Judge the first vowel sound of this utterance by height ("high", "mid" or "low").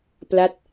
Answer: low